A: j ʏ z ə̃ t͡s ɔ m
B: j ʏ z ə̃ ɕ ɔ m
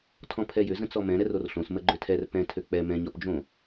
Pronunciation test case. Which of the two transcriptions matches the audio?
A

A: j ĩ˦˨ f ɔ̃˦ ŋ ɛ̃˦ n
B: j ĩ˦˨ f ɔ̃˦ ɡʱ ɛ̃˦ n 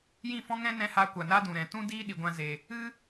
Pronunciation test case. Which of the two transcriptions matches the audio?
A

